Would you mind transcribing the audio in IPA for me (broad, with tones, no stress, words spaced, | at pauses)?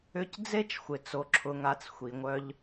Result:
ʏ˧c d͡ze˦t͡ʃxʷɪ˨ t͡so˨ǁʰʊ˨ŋa˨t͡s xʷi˨ŋʷœ˧ʎ